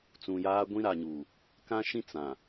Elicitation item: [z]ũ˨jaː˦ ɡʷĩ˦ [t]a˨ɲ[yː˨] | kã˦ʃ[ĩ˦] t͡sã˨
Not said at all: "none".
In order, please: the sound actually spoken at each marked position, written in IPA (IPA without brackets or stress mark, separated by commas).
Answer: t͡s, ɾ, uː˨, ĩ˦